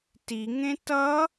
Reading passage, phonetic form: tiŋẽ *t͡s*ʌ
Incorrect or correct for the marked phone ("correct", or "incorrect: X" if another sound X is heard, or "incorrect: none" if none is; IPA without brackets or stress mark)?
incorrect: t